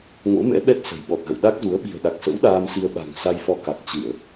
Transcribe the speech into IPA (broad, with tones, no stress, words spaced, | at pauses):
ŋo̰˧˥mɛ̰˧˥ɓɛ˦˥t̚ sə̤˨˩jɓɔ˨˩t̚ɣə̰˧˨w ɗa˦˥k̚zu˨˦ə̯ ɓi̤˨˩ə̯ɗa˨˩k̚sə̰˧˥w ɗaː˧msi˧ə̯ ɓa̤˨˩ŋ sa˧jfɔ˧ka˨˩k̚ t͡ɕɨ˧˩˨ə̯